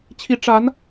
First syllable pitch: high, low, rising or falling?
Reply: rising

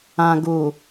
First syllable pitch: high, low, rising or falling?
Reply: low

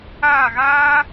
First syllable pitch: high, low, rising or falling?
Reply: falling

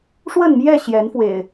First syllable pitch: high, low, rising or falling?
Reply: falling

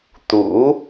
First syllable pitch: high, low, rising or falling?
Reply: rising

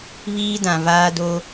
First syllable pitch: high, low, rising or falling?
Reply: high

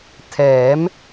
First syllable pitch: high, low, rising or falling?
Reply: rising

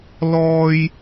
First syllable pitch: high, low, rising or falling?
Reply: low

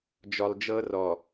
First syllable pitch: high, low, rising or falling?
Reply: low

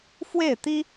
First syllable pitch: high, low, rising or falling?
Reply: falling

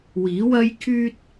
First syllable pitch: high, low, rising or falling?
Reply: rising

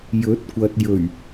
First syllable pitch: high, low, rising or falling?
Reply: rising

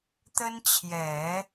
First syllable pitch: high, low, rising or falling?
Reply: high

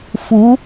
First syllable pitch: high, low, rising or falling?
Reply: rising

